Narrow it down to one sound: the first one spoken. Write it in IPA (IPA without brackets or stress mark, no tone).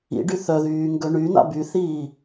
ḭ